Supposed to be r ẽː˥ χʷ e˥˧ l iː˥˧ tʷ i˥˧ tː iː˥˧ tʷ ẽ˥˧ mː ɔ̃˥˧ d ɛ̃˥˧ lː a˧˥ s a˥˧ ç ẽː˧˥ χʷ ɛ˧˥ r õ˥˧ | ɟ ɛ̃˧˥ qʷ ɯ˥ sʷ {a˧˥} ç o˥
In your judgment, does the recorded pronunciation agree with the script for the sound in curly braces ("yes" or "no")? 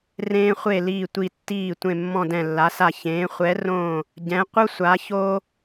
yes